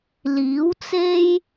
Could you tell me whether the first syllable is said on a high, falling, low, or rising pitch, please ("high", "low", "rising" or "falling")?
rising